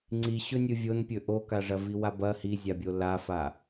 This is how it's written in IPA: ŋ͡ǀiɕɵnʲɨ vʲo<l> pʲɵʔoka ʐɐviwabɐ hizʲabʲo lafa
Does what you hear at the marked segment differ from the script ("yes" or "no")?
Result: yes